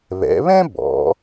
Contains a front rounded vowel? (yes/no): no